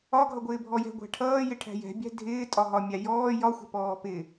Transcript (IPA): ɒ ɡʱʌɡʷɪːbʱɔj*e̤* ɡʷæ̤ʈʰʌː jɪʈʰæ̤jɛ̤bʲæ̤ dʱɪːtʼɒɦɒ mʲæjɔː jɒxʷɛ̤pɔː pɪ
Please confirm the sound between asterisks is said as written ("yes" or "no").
no